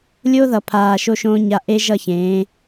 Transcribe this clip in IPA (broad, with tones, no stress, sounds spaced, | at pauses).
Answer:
lʲ o˦ ð ʌ˨ pʰ aː˨ ʃ o˦ ʃ õ˦ ɲ a˦ ʔ e˦ ʒ ʌ˦˨ ç ẽː˨˦